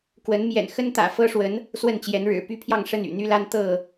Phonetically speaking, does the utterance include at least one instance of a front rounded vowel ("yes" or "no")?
yes